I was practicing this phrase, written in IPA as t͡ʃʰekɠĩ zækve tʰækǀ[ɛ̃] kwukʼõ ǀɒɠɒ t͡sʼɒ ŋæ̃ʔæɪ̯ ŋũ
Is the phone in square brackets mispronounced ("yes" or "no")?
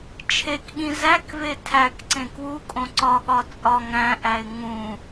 yes